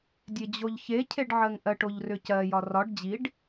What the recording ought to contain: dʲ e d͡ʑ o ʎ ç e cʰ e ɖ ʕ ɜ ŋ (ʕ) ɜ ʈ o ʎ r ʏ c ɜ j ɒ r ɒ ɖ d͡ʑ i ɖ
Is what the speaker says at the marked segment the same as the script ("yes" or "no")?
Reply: no